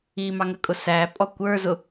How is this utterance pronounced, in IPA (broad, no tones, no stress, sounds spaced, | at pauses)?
i m ɑ ŋ ə kʼ ʊ s æ pʼ ɔ kʷ ə˞ z ʊ